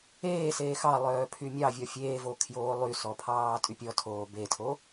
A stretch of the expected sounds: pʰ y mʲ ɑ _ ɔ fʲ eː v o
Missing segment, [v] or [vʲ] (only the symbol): vʲ